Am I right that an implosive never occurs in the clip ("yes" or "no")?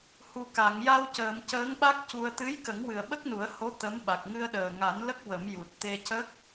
no